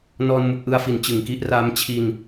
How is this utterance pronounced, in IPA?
n ɔː˧ n m u˨˩ k̚ ʔ ɯ˧ a̯ f i˨˩ n t͡ɕ ɯ˨˩ ŋ k i˦˥ ʔ r a˧ m t͡ɕʰ i˧ n

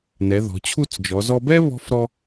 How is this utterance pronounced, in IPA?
n ɛ˩˧ ð ɔ̤˩˧ t͡ɕʰ u˥˧ t͡s d͡ʒ ɔ˩˧ z ɔ˧ b ɛ˥ β ɔ̤˥ f ɾ ɔ˧

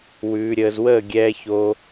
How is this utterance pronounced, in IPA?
w ʉː˨ ɾʲ əː˨ z w əː˦˨ ɡʲ ɛː˨ ç o˨

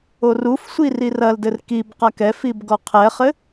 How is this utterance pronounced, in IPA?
o r u f sʷ i r i r ɐ l d ɘ r k i b q a k ɛ f i b ɡ ɔ qʰ ɛ χ ɘ

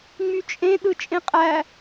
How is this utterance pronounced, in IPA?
ŋ͡m y t͡ʃʼ ẽ ɗ ɯ t͡ʃʼ ẽ qʼ æ

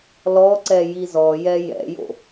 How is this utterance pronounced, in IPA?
l ɔ ǀ ɛ j i z ɔ j ɛ j ɛ̰ j o̰

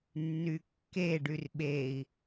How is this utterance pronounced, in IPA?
nː y kː e ɖ y r ɓ e i̯

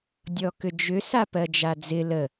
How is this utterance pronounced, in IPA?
dʲ ɔ k ʏ d͡ʒ ʏ s a p ɜ d͡ʒ a d͡z ɪ l ə

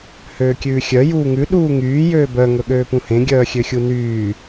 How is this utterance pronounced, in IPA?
h øː kʲ ʉː xʲ œ j uː ŋ ʉ ɗ uː ŋ yː j øː b œ ŋ ɵ ɠ øː p ũ h ẽ ɡʲ œː xʲ ø xʲ u n yː

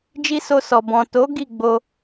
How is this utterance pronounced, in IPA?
d͡ʒ i˦ s o˧ s ɔ˨ b ɔ̃˨ t o˨˦ ɡ i˦˨ ɡ͡b o˧

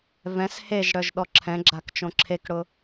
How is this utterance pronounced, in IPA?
v ɛ̃ s h e ʒ ɽ œ ʒ ɗ ɔ ǁʰ ɛ̃ ɡ͡ǁ a k t͡ʃ õ ǁʰ e k ɽ ʊ

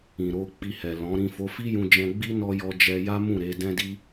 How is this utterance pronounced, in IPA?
ĩ˨ ɾ o˧ k͡p i˧ h ɛ˨ l ɔ̃˨˦ ɾ ĩ˦˨ f o˨˦ f i˦ j ũ˧ d͡ʒ ɛ̃˧ ɡ͡b i˦ n ɔ˦ j ɔ˧ d͡ʒ ɛ˧ j a˦ m ũ˦˨ ɾ e˨˦ d ɛ̃˦ d i˦

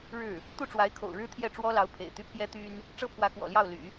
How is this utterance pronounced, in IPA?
ɻ ɻ̩˥˩ | t̪ u˥˩ ʈ͡ʂ w a˧˥ ɪ̯ kʰ o̰˨˩ ʊ̯ ɻ ɻ̩˥ t̪ʰ j ɛ˥˩ ʈ͡ʂ w ɔ˥ l ɑ˧˥ ʊ̯ pʰ ḛ˨˩ ɪ̯ t̪ y˥ pʰ j ɛ˥ t̪ y˥ n | ʈ͡ʂ ɤ˥ pʰ w ä˧˥ k w ɔ̰˨˩ l j ɑ˥˩ ʊ̯ l y̰˨˩˦

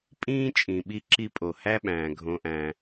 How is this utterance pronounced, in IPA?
pʼ ĩː˦ t͡ʃʼ ĩ˨ ɓ i˦ ǁ i˦ pʼ o˨ h æ˦ ɓ æ̃ː˨ ɡʱ õ˦ ʔ æ̃˦

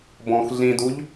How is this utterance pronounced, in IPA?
b ɔ̃ x ɮ ĩ d u ʎ

